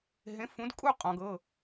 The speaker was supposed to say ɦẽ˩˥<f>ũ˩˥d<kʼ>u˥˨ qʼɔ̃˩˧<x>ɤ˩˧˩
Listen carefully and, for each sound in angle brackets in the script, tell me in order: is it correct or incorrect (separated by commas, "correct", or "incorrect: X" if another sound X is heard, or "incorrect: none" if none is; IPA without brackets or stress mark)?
correct, correct, incorrect: ɡ